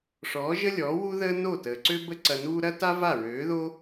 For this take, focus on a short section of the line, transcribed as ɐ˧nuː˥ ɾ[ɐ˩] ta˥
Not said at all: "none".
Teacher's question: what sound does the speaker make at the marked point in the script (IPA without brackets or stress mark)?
ɐ˥